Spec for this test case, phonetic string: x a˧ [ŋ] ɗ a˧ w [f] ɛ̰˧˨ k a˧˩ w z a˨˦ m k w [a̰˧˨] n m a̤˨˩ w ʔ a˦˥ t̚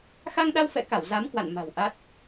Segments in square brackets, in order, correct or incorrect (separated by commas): correct, correct, correct